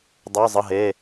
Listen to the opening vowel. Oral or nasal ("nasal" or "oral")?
oral